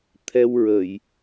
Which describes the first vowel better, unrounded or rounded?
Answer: unrounded